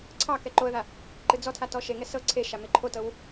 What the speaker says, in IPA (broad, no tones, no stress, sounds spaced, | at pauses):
ǀʰ ɑ k ɛ ǃ o ə̯ ð a | ǃ ɨ d͡z ɔ tʰ a t ɔ ʃ e ŋ ɛ s ɤ ǀʰ e ʃ a m e ǃʰ o t ɤ w